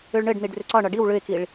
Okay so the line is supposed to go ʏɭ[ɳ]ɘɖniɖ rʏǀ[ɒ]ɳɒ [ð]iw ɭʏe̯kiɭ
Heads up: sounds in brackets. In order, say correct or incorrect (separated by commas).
correct, correct, incorrect